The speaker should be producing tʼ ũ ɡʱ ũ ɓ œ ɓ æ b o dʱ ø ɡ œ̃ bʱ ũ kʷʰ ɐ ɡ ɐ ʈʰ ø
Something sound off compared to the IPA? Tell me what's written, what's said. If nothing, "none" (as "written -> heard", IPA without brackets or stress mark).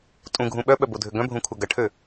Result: æ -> œ